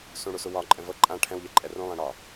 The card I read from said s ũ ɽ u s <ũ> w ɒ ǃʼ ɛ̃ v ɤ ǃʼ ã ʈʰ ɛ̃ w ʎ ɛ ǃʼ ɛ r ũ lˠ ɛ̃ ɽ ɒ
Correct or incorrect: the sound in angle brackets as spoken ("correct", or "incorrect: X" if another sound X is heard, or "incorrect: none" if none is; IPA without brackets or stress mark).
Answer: incorrect: u